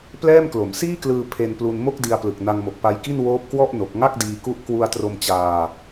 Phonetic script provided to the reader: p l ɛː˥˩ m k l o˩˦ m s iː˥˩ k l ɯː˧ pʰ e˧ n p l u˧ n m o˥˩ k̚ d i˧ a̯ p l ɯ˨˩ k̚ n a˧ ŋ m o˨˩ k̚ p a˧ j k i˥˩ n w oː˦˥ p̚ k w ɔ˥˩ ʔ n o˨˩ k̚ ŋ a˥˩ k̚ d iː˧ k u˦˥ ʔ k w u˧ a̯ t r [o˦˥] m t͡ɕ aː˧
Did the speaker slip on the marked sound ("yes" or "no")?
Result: yes